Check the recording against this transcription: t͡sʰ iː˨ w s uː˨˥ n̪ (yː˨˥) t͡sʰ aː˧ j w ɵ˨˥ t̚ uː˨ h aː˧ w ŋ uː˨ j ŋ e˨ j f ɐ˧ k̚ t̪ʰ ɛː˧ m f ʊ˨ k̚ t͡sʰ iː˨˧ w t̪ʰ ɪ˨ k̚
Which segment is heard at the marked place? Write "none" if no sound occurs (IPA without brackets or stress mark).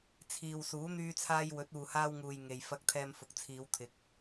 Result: yː˧